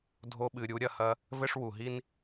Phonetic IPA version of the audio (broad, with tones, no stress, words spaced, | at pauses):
dʱo˧ɓɨ˨ɾʲu˧ ɾʲɐ˧hɐ˧ | vɘ˦ʂwu˨ɦi˦n